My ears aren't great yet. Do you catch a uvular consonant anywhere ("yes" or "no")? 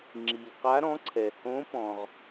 yes